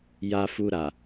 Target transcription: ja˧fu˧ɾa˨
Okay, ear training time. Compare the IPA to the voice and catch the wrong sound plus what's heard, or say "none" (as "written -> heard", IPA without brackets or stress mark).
none